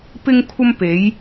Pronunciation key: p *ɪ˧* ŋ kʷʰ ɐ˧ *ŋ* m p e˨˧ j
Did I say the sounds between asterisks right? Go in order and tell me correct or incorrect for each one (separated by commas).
correct, incorrect